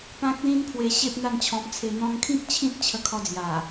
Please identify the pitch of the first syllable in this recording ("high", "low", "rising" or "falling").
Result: high